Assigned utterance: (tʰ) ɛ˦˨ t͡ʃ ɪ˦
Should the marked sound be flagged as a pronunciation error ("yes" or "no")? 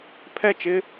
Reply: yes